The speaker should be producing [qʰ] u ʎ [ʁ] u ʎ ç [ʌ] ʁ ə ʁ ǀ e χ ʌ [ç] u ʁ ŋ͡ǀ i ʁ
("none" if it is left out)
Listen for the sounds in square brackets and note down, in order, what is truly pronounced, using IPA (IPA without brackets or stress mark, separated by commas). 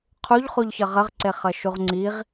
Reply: qʰ, χ, ʌ, ʃ